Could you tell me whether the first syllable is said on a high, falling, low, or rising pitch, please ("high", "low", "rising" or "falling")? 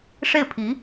falling